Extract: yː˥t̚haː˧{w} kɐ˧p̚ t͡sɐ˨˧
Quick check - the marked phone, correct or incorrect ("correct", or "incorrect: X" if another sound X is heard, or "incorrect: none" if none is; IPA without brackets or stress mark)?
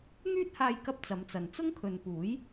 incorrect: j